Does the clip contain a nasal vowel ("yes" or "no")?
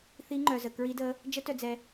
no